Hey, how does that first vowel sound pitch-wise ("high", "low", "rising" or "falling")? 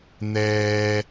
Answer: high